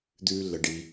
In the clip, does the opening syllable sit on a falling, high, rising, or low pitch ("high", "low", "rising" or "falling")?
high